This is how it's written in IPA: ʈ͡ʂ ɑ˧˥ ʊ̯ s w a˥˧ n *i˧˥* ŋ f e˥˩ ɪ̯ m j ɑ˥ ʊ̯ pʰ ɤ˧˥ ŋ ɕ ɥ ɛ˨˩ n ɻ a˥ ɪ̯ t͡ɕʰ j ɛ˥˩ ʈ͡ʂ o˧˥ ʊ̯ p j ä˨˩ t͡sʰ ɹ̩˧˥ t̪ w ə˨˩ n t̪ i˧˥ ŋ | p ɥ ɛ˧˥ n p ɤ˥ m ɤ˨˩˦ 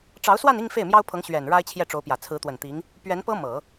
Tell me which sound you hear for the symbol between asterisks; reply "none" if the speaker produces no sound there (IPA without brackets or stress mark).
i˥˧